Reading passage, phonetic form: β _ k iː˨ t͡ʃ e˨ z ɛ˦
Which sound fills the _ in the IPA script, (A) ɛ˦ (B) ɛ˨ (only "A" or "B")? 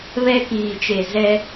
A